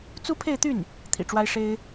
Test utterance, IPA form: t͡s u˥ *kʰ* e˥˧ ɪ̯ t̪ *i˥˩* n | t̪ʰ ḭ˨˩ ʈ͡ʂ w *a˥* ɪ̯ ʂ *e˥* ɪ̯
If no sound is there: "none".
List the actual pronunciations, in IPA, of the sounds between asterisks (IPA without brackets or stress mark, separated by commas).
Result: pʰ, y˥˩, a˥, e˥